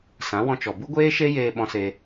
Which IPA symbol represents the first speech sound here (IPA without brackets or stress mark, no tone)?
s